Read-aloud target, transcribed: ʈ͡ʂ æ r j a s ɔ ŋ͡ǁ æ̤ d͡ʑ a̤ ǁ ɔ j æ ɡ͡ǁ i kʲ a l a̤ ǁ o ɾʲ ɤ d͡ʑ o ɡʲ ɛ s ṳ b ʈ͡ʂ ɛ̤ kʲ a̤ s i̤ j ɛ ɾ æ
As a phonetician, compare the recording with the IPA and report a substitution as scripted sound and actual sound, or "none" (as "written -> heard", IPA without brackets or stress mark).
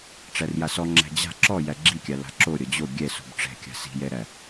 none